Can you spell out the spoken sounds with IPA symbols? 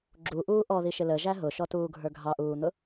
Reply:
ɡ͡ǁuʔuː ʔɔðiʃɪ ləʒæ ɦʊʃɔtuːɡʱə˞ ɡʱɑʔuːn̪ʊ

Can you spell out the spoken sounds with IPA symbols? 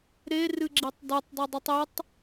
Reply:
ɾerɨɡ͡ǁitˤ dotˤdˤudˤitˤ etˤ

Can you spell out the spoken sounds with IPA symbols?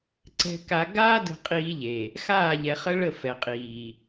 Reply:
ǀɛ̤˦ka˦ ɡaː˦ də̤˦qʼiː˦ʎe˨ | xaː˦˨ʎɛ˨χə˦ɭə˦˨ fɛ˨qʼiː˨

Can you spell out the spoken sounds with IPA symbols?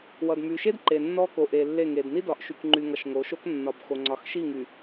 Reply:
wʌ˨dmy˨ʃe˦d ǃe˨nːɔ˦ko˨ ʔe˨lːe˦˨ŋe˨d ni˦dɒ˨ʔ ʃy˨kŋ͡ǃy˨ŋʌ˨ʃ ŋo˨˦ʃo˦k nːɒ˨bxo˨ ŋ͡ǀɒ˨xʃi˦˨ ŋy˨

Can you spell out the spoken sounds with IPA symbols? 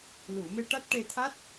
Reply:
lu˨˩˨ me˧ʈa˦˥t̚ ʈe˧t̪ʰa˦˥t̚

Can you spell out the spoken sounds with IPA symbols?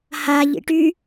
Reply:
ha ʎḭʈy

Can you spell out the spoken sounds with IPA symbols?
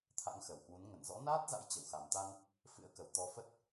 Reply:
t̪ʰa̰˧˥ŋxə˨˩whwu˨˦n ŋə˧˩nzɔ̰˧˥naː˦˥t̚za̰˧˥j t͡ɕə˧˩wxa˨˩mt̪a˧n | fɨ̰˧˥ə̯kə˧˩w t̪ɔ˧ fə˦˥t̚

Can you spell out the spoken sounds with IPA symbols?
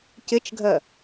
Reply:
cɪt͡ʃɡʱɜ

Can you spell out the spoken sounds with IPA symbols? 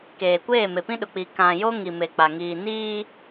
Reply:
keː˨kʷeː˦˨ me˨pĩ˦ɗʊ˨k͡piː˨ kã˨ jo˦ŋi˨me˨k͡pa˨ ŋiː˨niː˦

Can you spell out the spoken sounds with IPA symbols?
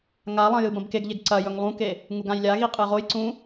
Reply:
ŋalˠɐ̃ jɨbɐ̃bkeɡʎeɡ ǀɐjɵŋ lˠũke | ŋuɡãjlʲaɣi qʼɨʁojǀũ

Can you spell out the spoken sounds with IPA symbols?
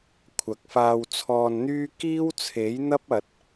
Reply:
kʷʰɐ˨k̚faː˧wt͡sʰɔː˧nn̪yː˥ kiː˥wt͡sʰe˨˥jn̪ɐ˥p̚ ɐ˨t̚

